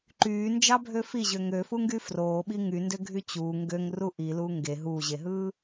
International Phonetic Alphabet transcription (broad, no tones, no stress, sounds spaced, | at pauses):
ǃ yː n d͡ʒ ɑ bʱ ø f i ʑ ø ŋ ø f u ŋ ɡ y f r oː ɓ i ŋ y n d ø ɡʱ y t͡ɕ uː ŋ ɡ ø ŋ r u ʔ i l uː ŋ ɡ e ɦ uː ʑ e ɦ ɯː